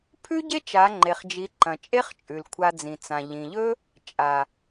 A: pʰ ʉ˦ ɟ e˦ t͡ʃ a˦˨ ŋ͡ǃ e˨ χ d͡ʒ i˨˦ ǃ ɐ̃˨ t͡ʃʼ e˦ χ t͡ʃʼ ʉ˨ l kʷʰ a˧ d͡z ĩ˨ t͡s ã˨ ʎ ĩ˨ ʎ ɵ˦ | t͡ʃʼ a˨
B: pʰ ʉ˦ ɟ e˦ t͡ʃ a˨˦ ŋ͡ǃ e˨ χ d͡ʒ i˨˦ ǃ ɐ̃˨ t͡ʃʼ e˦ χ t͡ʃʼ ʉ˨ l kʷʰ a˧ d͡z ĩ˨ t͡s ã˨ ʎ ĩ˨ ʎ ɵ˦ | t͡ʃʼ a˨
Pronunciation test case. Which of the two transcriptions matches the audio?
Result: B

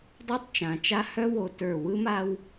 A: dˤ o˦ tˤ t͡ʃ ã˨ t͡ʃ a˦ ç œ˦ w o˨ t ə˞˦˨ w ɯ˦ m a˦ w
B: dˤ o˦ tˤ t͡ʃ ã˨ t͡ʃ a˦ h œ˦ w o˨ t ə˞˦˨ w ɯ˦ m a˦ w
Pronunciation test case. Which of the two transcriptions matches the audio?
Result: B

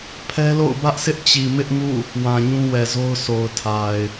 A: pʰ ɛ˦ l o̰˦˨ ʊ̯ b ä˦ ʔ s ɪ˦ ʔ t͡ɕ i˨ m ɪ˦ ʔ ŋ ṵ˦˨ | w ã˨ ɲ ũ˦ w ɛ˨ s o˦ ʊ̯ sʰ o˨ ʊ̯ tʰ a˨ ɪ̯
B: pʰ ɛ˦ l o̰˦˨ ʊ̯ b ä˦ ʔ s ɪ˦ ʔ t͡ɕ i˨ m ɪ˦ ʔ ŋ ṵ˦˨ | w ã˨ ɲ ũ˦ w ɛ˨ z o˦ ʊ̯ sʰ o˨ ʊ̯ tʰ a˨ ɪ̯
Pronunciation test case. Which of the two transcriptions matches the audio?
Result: B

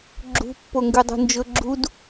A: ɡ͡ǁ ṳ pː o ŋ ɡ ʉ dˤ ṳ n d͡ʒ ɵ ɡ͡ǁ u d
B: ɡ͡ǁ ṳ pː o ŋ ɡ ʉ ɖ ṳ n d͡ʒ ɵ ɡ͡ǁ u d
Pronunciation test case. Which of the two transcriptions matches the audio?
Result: A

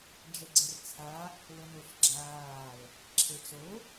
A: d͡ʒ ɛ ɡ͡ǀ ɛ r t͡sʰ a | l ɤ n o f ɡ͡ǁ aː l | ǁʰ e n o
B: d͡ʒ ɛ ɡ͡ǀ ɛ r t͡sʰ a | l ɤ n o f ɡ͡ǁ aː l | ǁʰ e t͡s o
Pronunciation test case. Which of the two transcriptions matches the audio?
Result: B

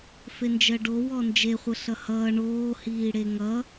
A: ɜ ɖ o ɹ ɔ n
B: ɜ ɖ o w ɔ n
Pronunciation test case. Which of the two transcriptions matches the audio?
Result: B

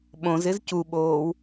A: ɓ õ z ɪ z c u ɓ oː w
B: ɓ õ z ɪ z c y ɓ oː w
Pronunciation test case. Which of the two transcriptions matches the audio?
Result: A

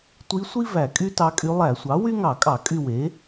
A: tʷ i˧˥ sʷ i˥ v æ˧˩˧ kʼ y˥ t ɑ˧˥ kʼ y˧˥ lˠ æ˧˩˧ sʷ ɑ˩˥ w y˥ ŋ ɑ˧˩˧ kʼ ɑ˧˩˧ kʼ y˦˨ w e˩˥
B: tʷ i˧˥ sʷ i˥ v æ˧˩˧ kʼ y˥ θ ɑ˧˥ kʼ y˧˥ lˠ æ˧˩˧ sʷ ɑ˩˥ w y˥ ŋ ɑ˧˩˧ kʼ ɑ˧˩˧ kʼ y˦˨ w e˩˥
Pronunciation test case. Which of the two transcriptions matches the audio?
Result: A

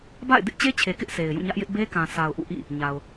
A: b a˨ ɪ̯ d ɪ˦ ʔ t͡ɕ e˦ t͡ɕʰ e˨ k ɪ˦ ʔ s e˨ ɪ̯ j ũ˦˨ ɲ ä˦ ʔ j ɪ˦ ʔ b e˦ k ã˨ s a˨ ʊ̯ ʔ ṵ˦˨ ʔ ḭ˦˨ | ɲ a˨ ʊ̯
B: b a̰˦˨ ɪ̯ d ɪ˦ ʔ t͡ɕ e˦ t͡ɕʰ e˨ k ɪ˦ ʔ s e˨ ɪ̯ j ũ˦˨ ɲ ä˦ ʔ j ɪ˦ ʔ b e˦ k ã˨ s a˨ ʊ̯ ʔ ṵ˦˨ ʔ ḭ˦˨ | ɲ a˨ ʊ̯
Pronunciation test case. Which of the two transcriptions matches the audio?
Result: B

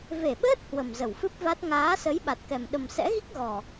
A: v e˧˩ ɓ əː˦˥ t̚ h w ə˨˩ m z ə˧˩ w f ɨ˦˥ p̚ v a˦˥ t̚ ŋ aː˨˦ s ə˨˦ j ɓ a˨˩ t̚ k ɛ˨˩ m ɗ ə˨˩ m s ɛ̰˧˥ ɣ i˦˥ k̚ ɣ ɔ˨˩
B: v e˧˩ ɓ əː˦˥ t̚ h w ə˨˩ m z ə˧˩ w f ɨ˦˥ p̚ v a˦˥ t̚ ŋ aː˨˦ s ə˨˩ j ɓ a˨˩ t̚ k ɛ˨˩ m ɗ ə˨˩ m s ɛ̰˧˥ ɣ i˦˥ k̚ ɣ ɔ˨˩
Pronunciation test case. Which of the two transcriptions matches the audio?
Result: A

